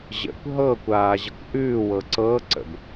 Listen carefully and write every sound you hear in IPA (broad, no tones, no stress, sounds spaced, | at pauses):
ʑ ə̰ kʷ ɦ ɤ kʷ aː ʑ ə kʷ ʔ ʉː w ɤ ǀ ɤː ǀ ə̰ b